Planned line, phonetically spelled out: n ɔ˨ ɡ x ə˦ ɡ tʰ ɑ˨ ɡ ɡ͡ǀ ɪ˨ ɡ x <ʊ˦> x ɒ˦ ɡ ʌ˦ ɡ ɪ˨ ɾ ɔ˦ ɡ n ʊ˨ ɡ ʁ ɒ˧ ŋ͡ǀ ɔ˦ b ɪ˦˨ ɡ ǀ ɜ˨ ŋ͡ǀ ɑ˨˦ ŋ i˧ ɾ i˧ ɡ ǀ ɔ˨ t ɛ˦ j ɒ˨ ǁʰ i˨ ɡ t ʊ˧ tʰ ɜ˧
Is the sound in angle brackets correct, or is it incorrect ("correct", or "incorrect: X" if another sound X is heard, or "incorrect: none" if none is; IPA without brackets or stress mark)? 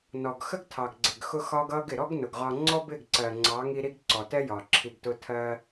correct